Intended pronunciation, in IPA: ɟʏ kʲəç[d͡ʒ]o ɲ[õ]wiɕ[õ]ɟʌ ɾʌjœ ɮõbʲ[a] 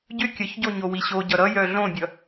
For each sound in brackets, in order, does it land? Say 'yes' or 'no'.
no, no, no, no

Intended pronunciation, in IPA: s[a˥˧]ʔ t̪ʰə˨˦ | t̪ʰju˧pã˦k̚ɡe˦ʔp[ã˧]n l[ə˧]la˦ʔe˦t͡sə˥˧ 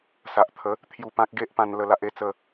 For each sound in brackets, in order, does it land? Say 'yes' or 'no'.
no, yes, yes

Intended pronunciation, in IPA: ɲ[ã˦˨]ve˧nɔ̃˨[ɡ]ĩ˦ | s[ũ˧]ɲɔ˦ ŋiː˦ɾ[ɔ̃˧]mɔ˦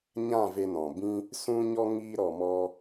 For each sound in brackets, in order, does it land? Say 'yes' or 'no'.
yes, no, no, no

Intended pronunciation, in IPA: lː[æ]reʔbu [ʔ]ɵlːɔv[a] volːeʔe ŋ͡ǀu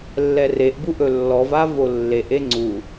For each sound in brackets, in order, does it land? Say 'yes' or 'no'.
no, yes, yes

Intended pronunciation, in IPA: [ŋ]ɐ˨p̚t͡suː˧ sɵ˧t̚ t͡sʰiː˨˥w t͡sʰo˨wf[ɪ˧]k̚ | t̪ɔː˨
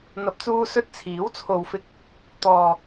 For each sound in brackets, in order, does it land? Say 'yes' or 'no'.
no, yes

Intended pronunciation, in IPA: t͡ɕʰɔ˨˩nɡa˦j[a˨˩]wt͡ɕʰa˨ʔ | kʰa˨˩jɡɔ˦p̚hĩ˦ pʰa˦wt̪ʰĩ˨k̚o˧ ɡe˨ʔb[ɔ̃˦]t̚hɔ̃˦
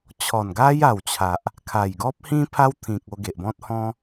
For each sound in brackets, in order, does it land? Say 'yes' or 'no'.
yes, yes

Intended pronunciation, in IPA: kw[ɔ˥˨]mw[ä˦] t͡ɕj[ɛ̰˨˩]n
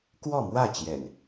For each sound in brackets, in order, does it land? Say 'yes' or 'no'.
yes, no, yes

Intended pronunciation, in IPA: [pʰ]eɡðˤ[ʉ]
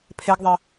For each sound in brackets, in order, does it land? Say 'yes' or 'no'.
yes, no

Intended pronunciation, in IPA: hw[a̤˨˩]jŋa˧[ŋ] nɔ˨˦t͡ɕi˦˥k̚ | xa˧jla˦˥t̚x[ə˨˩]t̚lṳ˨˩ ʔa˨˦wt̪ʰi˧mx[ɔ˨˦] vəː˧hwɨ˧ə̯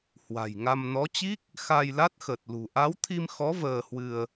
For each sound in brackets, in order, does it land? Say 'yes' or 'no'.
yes, no, yes, yes

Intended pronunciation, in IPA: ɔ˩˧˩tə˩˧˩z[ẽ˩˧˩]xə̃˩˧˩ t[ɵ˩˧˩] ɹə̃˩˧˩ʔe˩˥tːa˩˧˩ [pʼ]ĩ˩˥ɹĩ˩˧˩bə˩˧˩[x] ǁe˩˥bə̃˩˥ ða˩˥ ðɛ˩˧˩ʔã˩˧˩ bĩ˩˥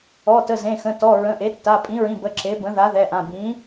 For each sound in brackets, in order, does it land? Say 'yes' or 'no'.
yes, no, yes, no

